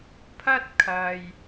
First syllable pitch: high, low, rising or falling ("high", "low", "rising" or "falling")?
high